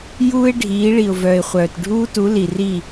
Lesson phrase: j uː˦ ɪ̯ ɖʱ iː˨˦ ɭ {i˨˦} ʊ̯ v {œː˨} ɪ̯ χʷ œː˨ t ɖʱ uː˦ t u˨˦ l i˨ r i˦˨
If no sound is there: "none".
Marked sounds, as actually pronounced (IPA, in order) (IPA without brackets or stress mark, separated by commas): i˨, œː˨